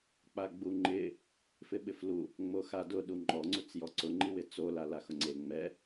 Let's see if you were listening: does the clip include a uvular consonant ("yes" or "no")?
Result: no